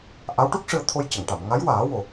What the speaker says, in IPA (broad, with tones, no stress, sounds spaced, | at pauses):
ʔ a˧˥ w ʈ u˦˥ k̚ ʂ ɨ˧ ə̯ t̪ʰ o˧ j c ə˨˩˨ ŋ ʈ a˨˩˨ m ŋ a˧˥ j w aː˨˩˦ w o˨˩